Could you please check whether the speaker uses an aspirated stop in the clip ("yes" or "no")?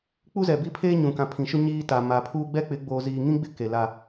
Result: yes